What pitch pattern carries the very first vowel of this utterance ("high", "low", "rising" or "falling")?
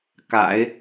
low